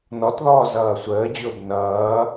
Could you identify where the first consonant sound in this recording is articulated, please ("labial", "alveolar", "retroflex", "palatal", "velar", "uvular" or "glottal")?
alveolar